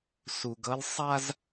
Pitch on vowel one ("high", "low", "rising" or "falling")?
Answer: low